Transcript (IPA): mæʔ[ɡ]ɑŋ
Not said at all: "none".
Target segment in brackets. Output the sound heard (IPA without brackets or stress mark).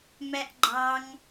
ɡ͡ǃ